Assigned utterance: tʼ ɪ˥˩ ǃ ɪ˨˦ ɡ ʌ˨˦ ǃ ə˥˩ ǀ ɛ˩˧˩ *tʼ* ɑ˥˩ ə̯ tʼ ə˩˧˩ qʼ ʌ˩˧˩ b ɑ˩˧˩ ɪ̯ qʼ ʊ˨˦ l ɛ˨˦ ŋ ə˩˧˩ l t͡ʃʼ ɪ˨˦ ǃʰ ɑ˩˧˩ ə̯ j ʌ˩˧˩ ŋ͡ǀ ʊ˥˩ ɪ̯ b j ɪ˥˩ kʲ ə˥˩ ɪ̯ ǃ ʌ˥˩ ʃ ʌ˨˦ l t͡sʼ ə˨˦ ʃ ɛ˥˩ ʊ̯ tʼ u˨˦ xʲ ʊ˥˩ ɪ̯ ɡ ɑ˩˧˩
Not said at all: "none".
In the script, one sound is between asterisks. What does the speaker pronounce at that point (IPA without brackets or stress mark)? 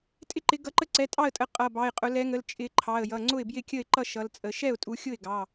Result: tʼ